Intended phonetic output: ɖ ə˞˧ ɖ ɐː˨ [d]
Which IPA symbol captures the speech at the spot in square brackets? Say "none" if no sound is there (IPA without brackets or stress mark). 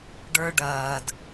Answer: d